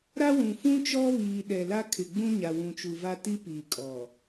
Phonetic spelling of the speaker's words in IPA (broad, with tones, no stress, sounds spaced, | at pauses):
ɾ a˦ w ũ˨ f ũ˦ t͡ʃ ɔ˦ β iː˨ ɗ ɛ˨ l a˦ kʰ ɪ˨ ɡ͡b ũ˦ ɲ a˨ w ũ˨ t͡ʃ u˨ v a˦ t i˦ p i˨ kʼ ɔ˨